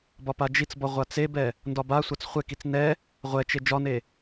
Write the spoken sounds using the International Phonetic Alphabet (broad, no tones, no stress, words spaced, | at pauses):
bɒpad͡ʒit͡sbɒ ʁʷat͡sebɛ | ndɒbasʷat͡s χʷɛkit͡s nɛ | ʁʷɛt͡ʃe d͡ʒɒne